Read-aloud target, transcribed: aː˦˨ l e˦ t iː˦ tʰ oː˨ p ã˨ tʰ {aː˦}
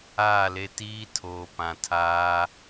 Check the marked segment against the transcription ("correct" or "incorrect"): correct